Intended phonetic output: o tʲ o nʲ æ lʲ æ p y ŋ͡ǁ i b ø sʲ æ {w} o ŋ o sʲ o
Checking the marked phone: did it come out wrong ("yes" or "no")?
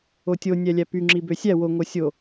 no